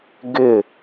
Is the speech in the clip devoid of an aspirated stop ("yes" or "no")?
yes